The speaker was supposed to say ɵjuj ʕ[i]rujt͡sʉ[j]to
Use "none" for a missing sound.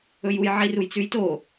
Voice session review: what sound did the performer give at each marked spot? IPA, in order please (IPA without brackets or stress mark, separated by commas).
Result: i, j